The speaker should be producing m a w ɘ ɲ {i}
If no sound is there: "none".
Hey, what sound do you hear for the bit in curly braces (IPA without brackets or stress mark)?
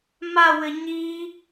i